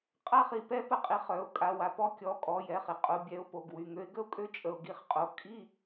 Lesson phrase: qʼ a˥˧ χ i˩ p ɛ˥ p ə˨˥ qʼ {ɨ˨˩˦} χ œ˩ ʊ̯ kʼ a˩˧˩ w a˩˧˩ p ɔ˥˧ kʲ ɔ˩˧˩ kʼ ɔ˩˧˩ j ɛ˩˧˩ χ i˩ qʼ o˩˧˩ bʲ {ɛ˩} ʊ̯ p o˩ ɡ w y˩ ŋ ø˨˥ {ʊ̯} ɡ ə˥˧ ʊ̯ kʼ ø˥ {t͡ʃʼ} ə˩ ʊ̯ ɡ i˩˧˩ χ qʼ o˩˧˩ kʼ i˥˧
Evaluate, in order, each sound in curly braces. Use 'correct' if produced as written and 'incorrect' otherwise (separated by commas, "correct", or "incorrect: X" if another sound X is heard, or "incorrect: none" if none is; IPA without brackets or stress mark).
incorrect: i˨˩˦, incorrect: ɛ˩˧˩, incorrect: ɪ̯, correct